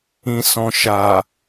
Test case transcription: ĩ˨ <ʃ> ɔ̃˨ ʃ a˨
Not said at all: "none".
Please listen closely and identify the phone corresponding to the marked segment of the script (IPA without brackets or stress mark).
s